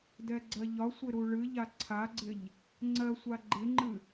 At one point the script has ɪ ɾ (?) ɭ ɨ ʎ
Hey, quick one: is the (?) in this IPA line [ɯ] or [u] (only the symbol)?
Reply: u